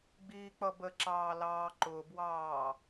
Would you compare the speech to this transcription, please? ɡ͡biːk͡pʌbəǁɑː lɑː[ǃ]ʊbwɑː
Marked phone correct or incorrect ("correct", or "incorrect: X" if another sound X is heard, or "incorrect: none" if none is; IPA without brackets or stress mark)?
correct